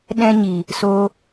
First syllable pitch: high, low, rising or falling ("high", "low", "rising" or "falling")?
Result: high